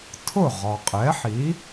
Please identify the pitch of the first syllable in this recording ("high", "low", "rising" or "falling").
falling